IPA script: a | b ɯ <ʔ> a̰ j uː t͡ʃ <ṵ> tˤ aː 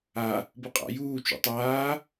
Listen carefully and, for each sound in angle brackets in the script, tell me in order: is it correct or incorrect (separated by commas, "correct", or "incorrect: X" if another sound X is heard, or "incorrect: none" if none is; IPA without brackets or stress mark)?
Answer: incorrect: qʼ, correct